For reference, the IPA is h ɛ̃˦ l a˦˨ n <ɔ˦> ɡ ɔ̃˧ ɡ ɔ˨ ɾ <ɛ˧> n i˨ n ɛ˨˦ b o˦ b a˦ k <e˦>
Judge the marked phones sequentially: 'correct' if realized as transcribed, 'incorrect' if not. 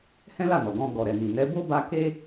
incorrect, incorrect, correct

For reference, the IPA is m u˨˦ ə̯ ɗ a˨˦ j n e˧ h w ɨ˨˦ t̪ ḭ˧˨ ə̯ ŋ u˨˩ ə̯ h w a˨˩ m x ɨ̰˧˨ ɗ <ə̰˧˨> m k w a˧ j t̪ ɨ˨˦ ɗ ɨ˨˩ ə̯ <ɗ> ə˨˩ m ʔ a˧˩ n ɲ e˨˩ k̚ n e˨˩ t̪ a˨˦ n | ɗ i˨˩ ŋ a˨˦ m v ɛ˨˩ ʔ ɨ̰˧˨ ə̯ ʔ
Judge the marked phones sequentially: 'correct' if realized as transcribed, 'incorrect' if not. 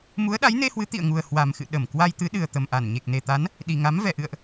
incorrect, incorrect

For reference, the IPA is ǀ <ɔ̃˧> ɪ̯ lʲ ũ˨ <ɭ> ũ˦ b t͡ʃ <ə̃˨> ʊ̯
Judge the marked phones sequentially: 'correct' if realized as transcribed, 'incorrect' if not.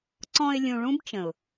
correct, correct, correct

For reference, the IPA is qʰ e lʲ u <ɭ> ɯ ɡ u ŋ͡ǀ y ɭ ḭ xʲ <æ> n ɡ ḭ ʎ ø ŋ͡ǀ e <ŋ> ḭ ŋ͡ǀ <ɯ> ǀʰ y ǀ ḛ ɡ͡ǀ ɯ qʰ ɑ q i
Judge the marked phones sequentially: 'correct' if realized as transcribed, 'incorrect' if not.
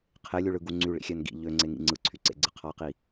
correct, correct, correct, correct

